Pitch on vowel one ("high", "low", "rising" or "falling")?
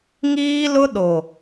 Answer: high